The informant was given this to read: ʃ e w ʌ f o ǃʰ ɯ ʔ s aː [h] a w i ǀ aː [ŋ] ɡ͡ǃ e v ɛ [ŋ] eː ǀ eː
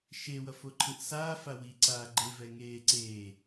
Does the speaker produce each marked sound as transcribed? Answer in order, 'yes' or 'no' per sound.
no, no, yes

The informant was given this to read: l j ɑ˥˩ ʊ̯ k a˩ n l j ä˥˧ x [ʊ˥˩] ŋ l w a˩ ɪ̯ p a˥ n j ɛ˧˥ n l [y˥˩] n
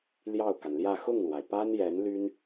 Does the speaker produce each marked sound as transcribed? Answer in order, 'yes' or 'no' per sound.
yes, no

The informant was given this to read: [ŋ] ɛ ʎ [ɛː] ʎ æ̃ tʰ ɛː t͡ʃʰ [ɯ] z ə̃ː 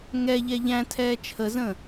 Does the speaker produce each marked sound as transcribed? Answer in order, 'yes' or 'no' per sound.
yes, no, no

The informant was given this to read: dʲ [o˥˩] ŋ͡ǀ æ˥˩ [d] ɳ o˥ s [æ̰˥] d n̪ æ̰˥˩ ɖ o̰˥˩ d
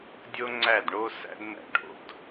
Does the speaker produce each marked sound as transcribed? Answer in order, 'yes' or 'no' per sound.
no, yes, yes

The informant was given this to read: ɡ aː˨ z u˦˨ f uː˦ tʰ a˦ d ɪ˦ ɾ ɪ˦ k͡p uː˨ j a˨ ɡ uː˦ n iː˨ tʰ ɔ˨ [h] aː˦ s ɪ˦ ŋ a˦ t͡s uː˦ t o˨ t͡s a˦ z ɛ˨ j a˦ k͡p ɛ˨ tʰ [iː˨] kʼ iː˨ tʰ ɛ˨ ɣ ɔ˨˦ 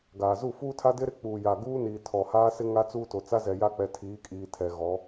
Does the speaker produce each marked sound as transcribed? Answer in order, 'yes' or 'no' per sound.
yes, no

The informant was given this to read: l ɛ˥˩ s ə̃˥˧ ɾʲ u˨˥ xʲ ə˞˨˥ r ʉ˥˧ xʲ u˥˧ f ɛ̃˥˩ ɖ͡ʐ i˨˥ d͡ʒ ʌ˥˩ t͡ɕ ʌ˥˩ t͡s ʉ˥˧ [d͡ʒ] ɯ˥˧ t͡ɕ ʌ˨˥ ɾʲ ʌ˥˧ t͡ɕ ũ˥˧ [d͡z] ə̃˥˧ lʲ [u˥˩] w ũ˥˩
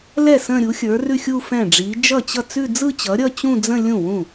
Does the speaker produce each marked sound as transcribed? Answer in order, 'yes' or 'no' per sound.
no, yes, no

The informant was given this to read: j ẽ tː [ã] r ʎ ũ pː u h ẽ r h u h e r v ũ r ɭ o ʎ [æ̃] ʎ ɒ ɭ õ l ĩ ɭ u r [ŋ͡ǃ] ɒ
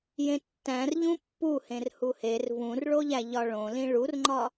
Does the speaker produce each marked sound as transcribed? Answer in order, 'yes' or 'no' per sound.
no, no, yes

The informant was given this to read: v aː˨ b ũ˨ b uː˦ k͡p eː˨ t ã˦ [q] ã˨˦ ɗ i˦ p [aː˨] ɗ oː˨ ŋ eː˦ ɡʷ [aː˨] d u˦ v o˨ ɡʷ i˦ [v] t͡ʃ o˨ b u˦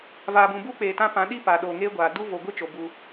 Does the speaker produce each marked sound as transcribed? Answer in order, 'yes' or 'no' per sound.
no, yes, yes, no

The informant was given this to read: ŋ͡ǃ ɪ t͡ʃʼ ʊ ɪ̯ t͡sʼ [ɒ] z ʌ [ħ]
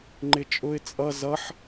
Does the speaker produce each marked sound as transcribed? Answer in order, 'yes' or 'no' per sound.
no, yes

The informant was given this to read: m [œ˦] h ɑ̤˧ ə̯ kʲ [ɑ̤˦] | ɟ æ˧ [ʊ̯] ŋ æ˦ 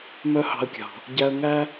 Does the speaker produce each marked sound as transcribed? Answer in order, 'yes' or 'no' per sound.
yes, no, no

